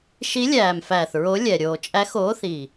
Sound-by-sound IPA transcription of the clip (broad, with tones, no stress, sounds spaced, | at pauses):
ʃ i˧˥ lʲ æː˨˩ m f æː˨˩ θ ɹ o˧˥ lʲ ɛ˨˩ ɾʲ oː˨˩ t͡ʃʼ æ˧˥ x oː˧˥ θ i˨˩